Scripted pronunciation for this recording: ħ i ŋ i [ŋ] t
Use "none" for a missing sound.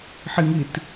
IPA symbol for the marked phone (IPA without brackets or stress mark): none